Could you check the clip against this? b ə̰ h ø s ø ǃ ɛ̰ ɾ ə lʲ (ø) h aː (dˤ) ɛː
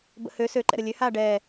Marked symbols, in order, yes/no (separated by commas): yes, no